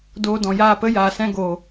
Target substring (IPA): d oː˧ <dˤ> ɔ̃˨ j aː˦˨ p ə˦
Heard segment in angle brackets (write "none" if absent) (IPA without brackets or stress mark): d